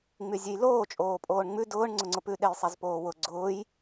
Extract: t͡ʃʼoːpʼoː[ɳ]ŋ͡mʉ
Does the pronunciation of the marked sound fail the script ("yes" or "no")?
no